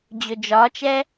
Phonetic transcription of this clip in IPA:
d͡ʑ ɵ d͡ʒ ɒ t͡ʃ ɛ

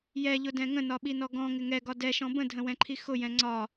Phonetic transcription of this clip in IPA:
j ɛ ʎ ʊ d ɛ̃ ŋ ə̃ n ɒ ɓ i n ɔ ɡ ɔ̃ ŋ ɪ ŋ ɛ ɡ ɒ d ɛ ʃ ɔ̃ b ə̃ dʱ ə̃ w ɛ̃ ǃʰ i x ʊ j ɛ̃ ŋ͡ǀ ɒ

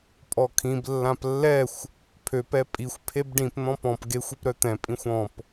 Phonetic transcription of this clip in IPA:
pʼ ɔ kʰ ĩ b lː ã p lː ɛ xʷ | pʰ ø p ɛ pʼ i xʷ pʰ e b ɖ ĩ p n̪ ɔ̃ p ɔ̃ p ɡ e xʷ i p ɾ œ t̪ ɛ̃ pʼ ĩ xʷ ɔ̃ p

